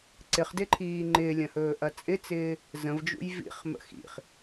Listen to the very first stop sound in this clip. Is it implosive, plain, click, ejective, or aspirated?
click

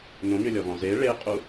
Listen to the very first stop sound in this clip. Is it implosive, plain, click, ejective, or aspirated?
ejective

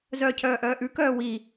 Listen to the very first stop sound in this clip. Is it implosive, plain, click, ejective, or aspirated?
aspirated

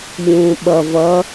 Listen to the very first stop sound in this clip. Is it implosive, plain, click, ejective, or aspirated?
implosive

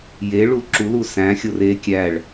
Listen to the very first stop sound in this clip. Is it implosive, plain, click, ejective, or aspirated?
click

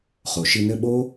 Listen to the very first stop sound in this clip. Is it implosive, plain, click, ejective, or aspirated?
implosive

